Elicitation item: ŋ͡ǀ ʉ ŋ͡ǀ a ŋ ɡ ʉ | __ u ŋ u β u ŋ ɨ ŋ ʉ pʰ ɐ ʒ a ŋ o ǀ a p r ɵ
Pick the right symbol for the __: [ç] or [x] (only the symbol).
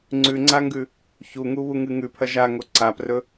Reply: ç